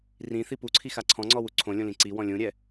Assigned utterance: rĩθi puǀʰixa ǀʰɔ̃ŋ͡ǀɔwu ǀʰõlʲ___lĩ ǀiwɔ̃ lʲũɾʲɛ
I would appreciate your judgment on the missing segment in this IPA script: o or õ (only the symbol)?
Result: õ